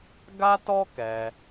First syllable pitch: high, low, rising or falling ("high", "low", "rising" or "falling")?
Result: high